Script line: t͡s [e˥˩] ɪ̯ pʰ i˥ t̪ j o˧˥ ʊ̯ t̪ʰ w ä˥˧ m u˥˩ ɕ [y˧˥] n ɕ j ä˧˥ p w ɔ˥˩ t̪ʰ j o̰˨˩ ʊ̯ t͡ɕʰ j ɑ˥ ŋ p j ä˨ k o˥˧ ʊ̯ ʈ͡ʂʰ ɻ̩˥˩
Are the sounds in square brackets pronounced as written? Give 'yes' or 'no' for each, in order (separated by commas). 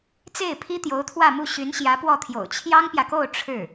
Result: yes, yes